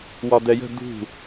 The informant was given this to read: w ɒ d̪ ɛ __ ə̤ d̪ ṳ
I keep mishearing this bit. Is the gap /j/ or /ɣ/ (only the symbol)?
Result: j